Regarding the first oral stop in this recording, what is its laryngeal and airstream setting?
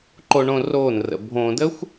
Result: click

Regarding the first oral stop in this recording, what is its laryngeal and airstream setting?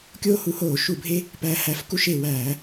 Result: plain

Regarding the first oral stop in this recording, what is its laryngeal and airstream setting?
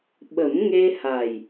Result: implosive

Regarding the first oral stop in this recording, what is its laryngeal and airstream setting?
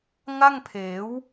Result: aspirated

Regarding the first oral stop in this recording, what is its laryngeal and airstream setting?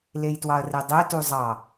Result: plain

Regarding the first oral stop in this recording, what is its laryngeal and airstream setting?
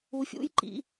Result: click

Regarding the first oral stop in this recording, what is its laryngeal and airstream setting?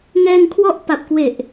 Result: aspirated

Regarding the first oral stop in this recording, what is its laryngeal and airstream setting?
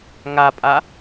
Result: ejective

